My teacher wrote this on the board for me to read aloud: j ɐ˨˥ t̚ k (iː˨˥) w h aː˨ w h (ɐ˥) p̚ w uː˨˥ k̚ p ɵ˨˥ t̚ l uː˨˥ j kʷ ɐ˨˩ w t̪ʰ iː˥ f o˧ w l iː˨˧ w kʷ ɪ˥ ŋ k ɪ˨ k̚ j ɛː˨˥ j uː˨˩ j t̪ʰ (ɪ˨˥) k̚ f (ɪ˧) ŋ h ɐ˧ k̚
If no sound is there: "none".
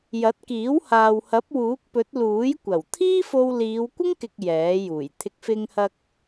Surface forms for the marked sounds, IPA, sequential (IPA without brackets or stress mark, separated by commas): iː˨˥, ɐ˨˥, ɪ˨˥, ɪ˧